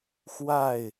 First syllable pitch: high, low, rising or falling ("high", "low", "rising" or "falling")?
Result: falling